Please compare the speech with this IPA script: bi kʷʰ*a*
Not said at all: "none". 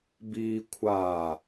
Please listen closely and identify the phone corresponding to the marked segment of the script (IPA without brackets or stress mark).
a